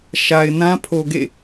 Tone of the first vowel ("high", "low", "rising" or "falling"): low